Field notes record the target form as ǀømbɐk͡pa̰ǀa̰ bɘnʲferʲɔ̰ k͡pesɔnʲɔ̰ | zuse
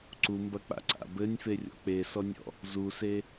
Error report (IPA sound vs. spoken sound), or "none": ø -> u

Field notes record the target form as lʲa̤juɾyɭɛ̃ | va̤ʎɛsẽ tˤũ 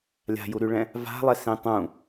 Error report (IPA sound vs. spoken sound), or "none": ʎ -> lˠ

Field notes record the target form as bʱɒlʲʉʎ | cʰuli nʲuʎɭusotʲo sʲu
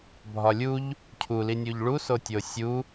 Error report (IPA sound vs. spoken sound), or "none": ʉ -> u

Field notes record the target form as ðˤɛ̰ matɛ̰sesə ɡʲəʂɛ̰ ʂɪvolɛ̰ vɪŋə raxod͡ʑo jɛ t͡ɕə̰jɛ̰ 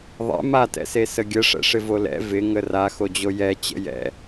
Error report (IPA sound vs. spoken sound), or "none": none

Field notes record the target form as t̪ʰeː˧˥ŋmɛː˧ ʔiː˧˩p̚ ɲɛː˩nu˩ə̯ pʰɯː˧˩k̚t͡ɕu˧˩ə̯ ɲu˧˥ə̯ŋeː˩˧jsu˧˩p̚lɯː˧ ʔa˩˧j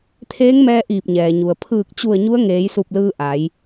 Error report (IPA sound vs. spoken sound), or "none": n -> ɲ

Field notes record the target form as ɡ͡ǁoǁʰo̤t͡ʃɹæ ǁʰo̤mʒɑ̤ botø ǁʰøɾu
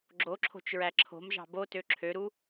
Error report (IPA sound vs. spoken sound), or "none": none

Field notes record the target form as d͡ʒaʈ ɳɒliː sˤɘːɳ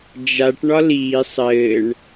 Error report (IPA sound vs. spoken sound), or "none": none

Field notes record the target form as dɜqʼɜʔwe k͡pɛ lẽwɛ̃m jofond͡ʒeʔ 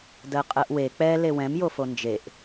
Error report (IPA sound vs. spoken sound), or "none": ẽ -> e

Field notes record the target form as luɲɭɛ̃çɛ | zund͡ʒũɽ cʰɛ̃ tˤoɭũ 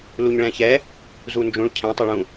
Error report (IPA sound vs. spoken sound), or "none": ɽ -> ɭ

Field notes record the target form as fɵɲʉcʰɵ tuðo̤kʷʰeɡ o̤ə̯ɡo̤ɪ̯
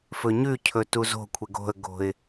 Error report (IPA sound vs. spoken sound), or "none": ð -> z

